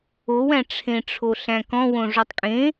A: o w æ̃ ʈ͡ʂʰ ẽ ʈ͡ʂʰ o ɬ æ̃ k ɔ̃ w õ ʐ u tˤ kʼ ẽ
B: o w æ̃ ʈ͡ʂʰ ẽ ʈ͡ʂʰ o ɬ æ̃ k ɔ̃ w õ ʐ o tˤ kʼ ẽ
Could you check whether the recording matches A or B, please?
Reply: B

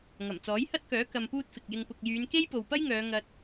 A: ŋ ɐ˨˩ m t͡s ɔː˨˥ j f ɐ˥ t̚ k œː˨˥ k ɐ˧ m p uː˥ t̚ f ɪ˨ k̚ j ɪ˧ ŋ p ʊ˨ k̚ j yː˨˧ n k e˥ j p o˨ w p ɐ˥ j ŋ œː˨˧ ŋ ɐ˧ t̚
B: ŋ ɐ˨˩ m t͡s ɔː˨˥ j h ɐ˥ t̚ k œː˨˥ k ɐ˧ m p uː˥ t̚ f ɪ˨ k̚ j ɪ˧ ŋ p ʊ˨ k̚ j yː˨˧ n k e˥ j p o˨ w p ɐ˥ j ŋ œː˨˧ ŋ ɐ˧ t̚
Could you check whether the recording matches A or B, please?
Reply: B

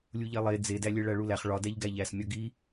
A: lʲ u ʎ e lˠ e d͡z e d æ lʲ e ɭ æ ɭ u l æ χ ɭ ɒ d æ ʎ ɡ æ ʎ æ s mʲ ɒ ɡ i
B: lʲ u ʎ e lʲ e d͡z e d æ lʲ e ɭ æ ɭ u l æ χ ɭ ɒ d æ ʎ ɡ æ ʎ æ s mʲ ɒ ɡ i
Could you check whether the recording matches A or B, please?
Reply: A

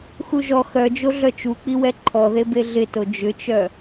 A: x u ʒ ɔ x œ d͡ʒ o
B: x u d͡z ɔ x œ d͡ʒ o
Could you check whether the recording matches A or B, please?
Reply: A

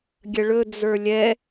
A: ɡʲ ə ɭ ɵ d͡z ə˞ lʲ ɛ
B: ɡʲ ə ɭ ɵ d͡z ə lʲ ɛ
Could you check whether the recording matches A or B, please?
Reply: A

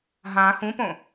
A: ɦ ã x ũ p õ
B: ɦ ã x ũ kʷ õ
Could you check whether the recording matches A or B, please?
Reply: A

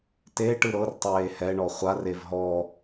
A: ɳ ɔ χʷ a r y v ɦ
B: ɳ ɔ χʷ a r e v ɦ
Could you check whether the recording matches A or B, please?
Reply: B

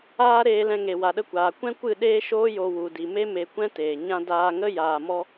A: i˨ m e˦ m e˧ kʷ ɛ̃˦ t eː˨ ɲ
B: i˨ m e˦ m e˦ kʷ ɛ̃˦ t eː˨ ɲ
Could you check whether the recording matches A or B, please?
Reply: A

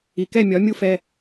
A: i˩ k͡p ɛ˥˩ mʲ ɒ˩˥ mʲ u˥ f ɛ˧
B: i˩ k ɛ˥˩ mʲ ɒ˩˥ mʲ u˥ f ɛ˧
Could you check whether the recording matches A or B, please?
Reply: B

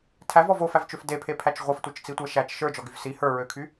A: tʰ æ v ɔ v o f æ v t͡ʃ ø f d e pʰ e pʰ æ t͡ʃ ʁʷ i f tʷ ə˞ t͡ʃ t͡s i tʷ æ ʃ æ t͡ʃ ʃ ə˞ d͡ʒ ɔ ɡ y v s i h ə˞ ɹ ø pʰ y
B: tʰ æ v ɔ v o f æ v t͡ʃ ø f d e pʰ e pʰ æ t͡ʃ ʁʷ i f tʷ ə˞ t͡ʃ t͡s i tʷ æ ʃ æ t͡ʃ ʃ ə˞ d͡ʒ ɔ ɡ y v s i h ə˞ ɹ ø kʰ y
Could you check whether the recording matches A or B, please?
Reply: B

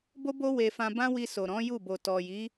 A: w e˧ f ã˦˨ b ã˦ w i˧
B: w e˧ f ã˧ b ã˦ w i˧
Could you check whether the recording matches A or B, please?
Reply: B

